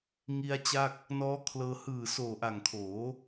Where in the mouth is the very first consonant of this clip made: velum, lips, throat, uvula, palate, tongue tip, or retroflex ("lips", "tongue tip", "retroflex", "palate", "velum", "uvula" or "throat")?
velum